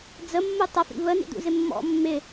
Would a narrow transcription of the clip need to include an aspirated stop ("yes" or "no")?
no